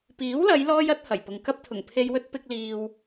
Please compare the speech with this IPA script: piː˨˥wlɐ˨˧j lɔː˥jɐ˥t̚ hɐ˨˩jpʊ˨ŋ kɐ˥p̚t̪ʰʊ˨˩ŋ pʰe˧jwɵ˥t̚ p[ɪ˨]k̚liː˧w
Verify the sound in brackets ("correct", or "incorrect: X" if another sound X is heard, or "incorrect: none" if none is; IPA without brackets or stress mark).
incorrect: ɪ˥